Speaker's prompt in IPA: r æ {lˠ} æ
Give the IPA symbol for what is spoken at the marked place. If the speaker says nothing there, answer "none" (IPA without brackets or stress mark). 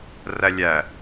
lʲ